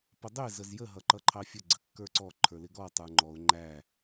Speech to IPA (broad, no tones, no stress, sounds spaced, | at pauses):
p ə dˤ ɪ z ə z j ə ɦ ʌ ǃ ʌ ǃʰ ɑ fʲ ə ɡ͡ǀ ə kː ə˞ ǀ ɔ ǃʰ ə˞ l ɪ ɡ ɔ tˤ ə˞ ŋ͡ǃ ɔ ʊ̯ ŋ͡ǃ æ